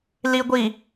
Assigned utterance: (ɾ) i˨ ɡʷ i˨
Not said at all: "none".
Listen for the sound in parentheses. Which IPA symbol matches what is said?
l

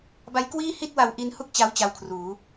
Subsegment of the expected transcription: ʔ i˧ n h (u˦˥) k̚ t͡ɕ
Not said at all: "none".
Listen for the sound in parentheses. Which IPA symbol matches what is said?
u˥˩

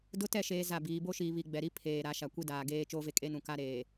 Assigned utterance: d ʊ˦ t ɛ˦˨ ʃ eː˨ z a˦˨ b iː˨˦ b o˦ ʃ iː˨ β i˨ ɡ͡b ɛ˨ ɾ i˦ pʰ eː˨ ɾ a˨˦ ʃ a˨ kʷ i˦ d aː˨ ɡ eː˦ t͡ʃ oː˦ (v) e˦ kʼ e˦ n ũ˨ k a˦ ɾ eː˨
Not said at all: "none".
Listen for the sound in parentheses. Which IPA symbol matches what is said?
v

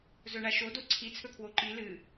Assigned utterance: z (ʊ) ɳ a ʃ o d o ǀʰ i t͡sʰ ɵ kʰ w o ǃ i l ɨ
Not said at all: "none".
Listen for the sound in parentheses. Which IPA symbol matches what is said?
ɵ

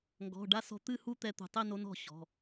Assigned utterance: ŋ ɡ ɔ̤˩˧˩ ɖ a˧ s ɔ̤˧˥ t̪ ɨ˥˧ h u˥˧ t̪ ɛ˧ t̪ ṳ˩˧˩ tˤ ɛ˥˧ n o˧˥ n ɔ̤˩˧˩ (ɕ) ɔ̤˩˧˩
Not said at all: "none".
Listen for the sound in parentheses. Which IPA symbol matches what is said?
ɕ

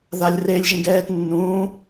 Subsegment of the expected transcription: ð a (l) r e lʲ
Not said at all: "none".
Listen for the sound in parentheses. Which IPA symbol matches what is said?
lʲ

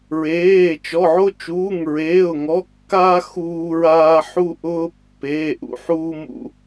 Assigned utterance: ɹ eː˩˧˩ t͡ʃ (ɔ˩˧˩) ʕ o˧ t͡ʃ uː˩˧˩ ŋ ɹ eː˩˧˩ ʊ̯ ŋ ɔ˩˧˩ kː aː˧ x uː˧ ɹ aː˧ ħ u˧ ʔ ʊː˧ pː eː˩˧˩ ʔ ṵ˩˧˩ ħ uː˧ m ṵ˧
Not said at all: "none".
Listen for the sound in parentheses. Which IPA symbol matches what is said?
ɔ˩˧˩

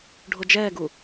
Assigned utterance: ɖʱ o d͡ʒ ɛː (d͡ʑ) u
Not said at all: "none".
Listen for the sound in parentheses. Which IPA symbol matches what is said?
ɡ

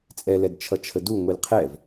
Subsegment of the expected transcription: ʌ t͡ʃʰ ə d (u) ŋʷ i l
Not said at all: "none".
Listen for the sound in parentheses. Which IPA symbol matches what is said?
u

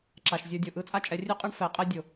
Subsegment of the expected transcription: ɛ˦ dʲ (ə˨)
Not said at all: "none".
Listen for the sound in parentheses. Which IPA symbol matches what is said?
ʊ˨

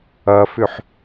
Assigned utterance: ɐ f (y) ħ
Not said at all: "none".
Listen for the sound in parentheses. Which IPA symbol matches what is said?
ʏ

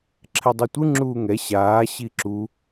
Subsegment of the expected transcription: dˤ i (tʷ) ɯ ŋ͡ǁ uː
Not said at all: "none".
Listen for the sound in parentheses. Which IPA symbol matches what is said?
tʷ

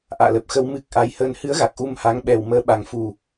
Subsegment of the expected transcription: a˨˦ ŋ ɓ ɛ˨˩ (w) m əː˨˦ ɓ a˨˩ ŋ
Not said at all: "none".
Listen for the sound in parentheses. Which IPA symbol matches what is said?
w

